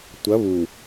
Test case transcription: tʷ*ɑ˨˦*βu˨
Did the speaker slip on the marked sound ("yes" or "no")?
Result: yes